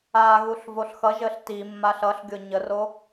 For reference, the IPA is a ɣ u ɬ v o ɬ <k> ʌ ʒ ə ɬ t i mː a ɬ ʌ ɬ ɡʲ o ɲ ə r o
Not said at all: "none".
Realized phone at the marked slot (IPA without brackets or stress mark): x